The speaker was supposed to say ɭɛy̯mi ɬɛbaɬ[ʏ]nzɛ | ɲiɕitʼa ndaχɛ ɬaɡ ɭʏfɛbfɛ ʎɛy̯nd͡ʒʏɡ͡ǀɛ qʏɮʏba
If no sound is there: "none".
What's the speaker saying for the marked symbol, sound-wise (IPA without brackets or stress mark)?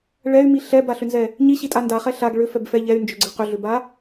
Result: ʏ